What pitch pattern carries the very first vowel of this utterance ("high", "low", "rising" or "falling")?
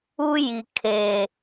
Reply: high